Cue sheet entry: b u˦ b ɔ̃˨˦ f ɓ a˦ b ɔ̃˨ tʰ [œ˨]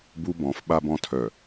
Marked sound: correct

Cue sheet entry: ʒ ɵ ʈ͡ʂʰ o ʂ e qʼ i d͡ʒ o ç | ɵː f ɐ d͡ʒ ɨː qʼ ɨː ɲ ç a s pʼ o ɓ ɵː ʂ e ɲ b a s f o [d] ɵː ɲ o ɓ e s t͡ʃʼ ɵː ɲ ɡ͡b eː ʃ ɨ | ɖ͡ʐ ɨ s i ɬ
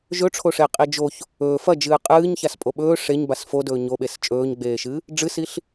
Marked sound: correct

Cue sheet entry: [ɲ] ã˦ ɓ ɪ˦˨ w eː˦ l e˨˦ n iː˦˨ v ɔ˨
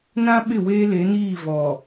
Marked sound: incorrect: n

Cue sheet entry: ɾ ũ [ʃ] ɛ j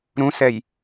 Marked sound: incorrect: s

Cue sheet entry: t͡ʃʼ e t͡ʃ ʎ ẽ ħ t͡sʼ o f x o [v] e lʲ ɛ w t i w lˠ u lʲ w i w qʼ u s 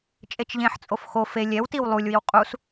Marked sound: incorrect: f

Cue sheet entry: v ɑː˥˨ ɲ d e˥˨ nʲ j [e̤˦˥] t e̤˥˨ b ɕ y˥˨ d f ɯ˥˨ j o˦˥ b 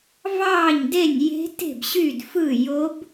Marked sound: correct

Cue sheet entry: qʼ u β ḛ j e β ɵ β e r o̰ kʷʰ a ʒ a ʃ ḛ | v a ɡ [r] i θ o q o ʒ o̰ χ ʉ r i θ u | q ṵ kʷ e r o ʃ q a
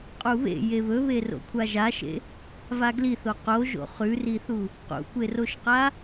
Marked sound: incorrect: l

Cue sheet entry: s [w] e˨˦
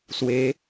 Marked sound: correct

